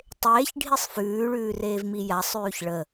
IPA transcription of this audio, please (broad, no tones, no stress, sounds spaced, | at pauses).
tˤ eː ç ɖʱ i sˤ f ʉː ɭ ʉː r eː v m i j a sˤ ʉː ç ɭ ə